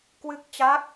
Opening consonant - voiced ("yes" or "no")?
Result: no